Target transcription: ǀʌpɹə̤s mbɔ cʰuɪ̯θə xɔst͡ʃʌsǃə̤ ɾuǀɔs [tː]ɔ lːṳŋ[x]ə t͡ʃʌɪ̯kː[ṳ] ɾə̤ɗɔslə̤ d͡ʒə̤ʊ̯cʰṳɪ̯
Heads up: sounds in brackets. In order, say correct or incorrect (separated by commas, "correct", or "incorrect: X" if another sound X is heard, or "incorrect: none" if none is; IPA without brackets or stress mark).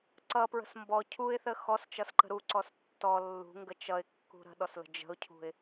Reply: correct, incorrect: ɡ, correct